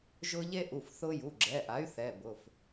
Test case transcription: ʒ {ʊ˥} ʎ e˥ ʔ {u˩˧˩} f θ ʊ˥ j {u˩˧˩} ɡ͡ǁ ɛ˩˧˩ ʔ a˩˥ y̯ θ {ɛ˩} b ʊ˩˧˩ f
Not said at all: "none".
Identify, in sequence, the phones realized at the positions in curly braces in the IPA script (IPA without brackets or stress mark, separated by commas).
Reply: ʊ˥, u˩˧˩, u˩˧˩, ɛ˩˧˩